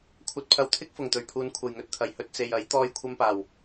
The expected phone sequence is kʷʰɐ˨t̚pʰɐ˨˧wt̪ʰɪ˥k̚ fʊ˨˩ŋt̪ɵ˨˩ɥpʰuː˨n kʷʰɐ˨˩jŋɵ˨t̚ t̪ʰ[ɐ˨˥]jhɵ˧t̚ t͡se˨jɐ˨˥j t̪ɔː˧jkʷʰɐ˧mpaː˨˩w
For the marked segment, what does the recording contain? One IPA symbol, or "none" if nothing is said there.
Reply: ɐ˨˩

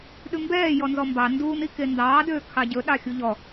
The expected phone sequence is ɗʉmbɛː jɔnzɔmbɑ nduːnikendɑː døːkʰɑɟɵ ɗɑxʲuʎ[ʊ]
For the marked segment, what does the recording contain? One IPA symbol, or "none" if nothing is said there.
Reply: ɔ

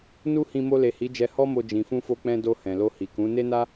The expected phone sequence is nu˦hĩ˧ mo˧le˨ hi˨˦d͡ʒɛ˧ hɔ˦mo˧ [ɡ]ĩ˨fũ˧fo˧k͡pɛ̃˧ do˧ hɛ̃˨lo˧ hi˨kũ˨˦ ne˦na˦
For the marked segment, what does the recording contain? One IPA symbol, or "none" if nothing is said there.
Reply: d͡ʒ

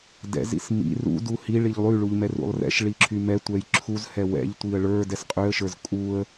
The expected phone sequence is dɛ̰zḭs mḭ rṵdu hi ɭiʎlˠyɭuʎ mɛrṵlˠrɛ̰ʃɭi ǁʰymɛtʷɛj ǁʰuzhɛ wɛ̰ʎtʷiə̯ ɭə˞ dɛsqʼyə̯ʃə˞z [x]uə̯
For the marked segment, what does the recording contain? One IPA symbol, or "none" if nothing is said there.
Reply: kʼ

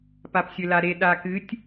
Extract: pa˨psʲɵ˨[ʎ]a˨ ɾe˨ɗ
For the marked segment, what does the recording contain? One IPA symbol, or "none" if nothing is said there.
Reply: l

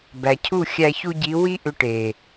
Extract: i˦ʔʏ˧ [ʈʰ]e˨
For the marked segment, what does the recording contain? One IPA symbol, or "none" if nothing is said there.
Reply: ʈ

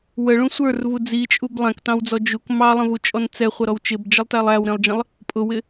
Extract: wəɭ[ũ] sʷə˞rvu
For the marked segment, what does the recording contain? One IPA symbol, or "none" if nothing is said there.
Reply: ũ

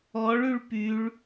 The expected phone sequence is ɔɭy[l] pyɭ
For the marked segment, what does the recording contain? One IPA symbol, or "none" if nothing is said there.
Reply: ɭ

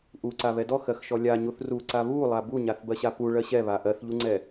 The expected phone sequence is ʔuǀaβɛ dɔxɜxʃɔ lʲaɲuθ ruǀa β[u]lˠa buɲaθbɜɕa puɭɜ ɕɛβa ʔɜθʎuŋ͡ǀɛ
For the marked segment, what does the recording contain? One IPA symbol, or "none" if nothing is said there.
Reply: u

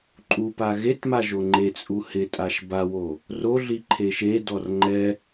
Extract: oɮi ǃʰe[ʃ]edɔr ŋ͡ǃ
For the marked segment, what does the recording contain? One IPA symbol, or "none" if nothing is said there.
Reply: ʃ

